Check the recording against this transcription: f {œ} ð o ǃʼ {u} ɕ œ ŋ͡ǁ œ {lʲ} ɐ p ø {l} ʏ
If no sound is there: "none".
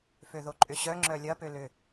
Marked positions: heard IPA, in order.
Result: ø, ʏ, lʲ, l

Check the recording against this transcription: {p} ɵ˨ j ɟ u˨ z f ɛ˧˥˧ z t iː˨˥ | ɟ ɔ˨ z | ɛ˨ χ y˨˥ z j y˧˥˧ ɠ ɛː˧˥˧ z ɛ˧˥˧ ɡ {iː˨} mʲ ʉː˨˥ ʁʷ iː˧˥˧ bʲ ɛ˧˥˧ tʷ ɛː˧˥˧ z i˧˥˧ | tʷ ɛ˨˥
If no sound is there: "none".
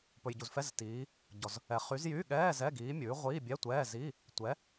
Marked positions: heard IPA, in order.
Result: p, iː˨˥

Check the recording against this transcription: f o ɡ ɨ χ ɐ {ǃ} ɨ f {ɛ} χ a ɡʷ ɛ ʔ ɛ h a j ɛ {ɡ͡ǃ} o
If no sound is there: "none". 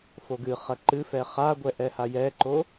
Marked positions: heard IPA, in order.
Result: ǃ, ɛ, ǃ

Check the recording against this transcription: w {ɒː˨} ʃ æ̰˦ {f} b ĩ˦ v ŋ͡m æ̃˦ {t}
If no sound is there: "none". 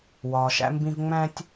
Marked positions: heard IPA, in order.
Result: ɒː˨, m, tʲ

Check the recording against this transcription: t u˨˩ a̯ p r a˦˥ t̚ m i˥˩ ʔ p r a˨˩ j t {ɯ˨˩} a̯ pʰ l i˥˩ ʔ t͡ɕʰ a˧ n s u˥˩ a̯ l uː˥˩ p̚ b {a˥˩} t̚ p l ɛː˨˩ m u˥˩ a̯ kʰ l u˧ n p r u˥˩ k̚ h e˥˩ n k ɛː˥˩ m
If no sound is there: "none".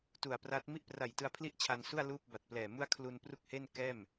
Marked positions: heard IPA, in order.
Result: ɯ˧, a˨˩

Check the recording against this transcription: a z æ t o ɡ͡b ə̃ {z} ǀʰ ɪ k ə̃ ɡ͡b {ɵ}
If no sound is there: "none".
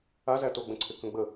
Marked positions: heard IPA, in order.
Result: none, ə

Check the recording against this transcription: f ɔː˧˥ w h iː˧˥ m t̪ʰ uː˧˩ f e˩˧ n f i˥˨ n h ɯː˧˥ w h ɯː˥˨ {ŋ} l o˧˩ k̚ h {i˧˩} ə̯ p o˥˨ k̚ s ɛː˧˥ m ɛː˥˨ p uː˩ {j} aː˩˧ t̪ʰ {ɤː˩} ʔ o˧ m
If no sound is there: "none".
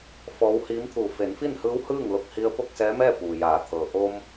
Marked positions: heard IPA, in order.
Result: ŋ, i˧, j, ɤː˩

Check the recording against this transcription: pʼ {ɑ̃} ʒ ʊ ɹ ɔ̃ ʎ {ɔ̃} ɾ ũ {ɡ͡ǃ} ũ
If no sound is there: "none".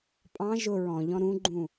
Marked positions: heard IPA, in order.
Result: ɑ̃, ɔ̃, ɡ͡ǃ

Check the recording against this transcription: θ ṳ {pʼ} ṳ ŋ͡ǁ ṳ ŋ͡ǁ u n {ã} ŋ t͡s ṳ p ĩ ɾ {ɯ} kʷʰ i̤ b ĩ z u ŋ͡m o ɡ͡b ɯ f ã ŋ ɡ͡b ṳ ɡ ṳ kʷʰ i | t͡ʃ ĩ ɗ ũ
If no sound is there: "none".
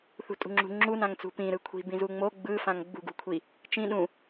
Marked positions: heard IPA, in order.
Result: tʼ, ã, ɯ

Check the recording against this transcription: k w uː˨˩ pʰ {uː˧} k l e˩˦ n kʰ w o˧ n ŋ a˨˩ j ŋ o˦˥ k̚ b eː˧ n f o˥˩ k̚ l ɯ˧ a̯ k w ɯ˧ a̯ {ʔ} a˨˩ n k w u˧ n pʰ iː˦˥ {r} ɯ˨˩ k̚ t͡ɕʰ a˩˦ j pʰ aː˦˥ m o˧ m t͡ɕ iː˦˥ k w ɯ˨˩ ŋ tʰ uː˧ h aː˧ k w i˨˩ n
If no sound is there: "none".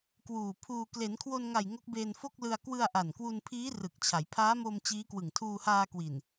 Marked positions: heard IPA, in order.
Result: uː˧, ʔ, r

